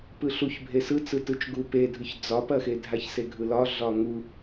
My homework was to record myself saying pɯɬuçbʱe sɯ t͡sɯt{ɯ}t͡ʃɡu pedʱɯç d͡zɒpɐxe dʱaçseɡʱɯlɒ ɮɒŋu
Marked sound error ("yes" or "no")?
no